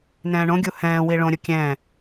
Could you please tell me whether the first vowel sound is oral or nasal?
nasal